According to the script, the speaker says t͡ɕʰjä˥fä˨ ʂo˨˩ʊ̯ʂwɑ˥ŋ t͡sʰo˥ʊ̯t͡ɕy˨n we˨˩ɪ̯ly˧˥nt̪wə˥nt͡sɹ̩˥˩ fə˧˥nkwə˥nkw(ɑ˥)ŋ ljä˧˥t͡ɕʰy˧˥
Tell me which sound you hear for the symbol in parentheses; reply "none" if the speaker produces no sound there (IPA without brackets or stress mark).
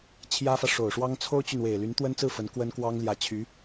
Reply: ɑ˥